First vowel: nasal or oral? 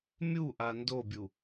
oral